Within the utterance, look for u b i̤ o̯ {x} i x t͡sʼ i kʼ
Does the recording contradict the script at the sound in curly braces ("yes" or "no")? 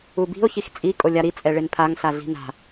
yes